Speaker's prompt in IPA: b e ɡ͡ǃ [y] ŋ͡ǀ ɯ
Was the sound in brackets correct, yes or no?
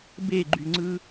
yes